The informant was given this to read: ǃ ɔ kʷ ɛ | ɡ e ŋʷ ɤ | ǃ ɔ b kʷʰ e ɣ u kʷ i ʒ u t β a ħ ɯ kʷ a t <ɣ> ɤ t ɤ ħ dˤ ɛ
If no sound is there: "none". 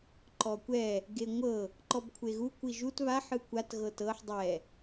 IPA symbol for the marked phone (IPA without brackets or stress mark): ɣ